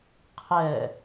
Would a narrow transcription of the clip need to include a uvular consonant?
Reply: yes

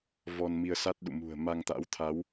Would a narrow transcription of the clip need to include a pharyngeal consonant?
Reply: no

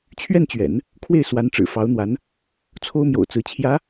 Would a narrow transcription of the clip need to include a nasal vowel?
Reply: no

